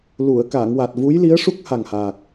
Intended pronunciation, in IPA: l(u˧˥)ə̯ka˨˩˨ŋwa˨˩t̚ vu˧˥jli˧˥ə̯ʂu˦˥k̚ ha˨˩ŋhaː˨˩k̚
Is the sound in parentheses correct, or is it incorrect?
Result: incorrect